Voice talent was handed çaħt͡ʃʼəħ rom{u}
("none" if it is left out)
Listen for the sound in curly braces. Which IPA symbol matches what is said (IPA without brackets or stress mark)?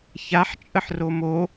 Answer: o